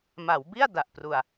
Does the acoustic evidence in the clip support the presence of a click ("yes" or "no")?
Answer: no